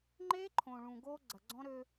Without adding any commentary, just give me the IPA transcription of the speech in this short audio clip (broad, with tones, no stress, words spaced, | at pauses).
ŋ͡ǃe˦ǃʰõ˨ ɭũ˨ɡo˦ ɡ͡ǀɐ˨ɡ͡ǀɔ̃˦ɾø˦